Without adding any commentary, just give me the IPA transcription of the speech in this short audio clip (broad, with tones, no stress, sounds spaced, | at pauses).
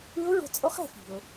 ɯ˧˥ ʊ̯ ɹ o̤˧ t͡sʼ o˧˥ χ ɛ̤˩˧ f i̤˩ ʊ̯